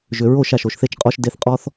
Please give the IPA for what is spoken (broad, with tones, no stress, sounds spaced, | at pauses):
ʒ ʏ˨ ɹ o˦˨ ʃ a˨ ʃ o˨ ʃ θ e˦ t͡ʃ qʼ ɔ˦ ʃ d e˧ θ qʼ ɔ˦ θ